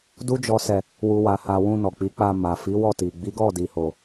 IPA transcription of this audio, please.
d u˦ d͡ʒ ɔ˧ s ɛ˨ | w u˨ w a˨ h a˨ w ũ˧ n ɔ˨ k͡p i˨˦ k͡p a˧ m a˨ f i˨˦ w ɔ˦˨ t i˨ ɡ͡b i˨˦ ɡ ɔ˦˨ d i˨ h o˨

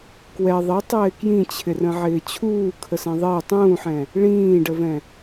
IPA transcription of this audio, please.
k w ɛ ðˤ ɪ tˤ ɪː k j ĩ t͡ɕʰ ɪ r ə̃ ʕ ɪː t͡ɕʰ uː kʰ ə s ɛ̃ ðˤ ɪː tˤ ũː ħ ɛ̃ | ɭ ĩː ɖ ə v ɛ̃

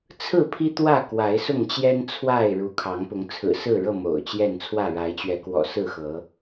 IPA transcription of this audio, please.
t͡sʰ ɹ̩˥˨ pʰ i˦ t̪ w ä˥˨ k w a˨˦ ɪ̯ s ʊ˥˨ ŋ t͡ɕ j ɛ˦ n t͡sʰ w a˥˨ ɪ̯ ɻ u˨˦ kʰ ɑ˨˦ ŋ p ʊ˨˦ ŋ t͡sʰ ɹ̩˨˩ s ɹ̩˥˨ ɻ ɤ˥˨ m o̰˨˩ ʊ̯ t͡ɕ j ɛ˥˨ n t͡sʰ w ä˥˨ ɻ a˨˦ ɪ̯ t͡ɕ ɥ ɛ˨˦ k w ɔ̰˨˩ s ɹ̩˥˨ x ɤ˨˦

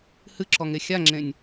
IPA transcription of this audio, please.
h ɨ ǁ ɔ ŋ e xʲ a ŋ͡ǁ ẽ nʲ

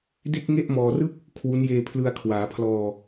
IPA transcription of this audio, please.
d e˥˩ k̚ ŋ e˥˩ ʔ m ɔː˧ r ɯ˥˩ k̚ | kʰ w u˦˥ n j eː˧ pʰ l ɯ˧ a̯ kʰ w aː˩˦ pʰ l ɔː˧

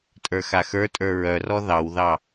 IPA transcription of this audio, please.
tʼ ə˞ x a x ə˞ tʼ ə˞ ɹ œ r ɔ ð ɑ w ð ɑ

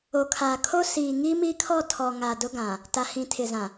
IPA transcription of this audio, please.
o˨ kʰ aː˨ kʰ o˦ s iː˨ ŋ i˦ m i˦ kʰ ɔ˦˨ tʰ ɔ˨ ŋ a˨ d ʊ˦ ɡ ã˨ | t a˨ h ĩ˨ tʰ ɪ˨ z ã˨

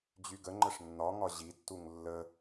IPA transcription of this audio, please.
d͡ʑ y ɡ ə ŋ͡ǃ ə ʂ nː ɒ ŋ ɒ ʑ i tː u ŋ lː ə

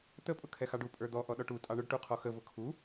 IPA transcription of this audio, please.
t̪ ə pʼ ʊ kʰ ɛ x ɑ ɖ u pʼ ə˞ d̪ ɔ ʔ ɔ ɗ ɔ ʈ u tʼ ɑ ɳ ʊ ɖ ʈ u qʰ ɔ x ə v ʊ kʰ u

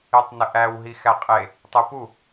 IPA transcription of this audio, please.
i tˤ n ɘ ʔ æ w ɦ i x æ qʼ e | tˤ i p u

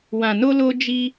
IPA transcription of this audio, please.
w ã˨ n o˧ l o˧ d͡ʒ i˦

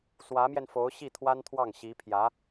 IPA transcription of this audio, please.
s w ä˧˥ m j ɛ˧ n f o˧˥ ʊ̯ ɕ i˥˩ t̪ʰ w a˥ n t̪ʰ w ɑ˥˩ ŋ ɕ i˧˥ pʰ j ä˧˥

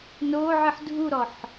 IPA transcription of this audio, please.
n o ʕ ɨ ħ dʱ u ɾ ɔ ħ

